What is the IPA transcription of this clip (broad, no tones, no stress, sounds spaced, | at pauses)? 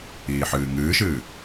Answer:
iː ħ ɨː ŋ ɨː ʃ ɨː